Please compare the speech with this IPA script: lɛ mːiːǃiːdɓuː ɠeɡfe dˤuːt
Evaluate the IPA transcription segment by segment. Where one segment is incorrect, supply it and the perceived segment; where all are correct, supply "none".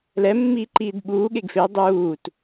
none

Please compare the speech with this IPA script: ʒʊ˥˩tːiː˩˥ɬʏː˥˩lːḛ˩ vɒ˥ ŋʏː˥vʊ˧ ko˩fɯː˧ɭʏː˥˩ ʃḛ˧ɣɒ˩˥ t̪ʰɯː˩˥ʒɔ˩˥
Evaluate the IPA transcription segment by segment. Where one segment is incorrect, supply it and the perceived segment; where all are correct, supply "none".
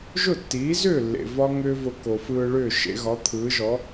ɬ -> z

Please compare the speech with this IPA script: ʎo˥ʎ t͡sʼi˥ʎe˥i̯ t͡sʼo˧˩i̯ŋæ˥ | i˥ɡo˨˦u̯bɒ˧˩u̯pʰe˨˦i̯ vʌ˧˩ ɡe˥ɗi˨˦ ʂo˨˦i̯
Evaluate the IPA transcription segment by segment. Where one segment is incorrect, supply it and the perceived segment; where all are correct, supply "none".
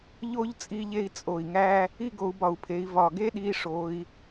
ʌ˧˩ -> ɒ˧˩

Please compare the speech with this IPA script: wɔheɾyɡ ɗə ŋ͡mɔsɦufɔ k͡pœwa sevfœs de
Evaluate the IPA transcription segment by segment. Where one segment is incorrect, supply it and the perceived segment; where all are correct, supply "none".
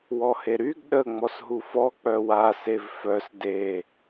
none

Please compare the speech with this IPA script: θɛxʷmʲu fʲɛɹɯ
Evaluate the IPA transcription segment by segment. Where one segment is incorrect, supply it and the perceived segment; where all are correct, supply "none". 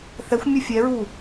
ɯ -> u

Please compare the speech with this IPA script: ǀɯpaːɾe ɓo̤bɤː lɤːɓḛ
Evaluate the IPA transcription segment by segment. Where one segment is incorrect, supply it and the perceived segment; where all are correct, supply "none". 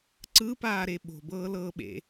none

